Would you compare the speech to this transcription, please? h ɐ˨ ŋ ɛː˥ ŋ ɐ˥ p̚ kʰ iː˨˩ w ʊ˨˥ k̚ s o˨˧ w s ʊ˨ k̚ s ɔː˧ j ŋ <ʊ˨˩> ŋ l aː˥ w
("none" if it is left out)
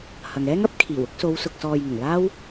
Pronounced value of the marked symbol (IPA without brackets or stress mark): ʊ˨˩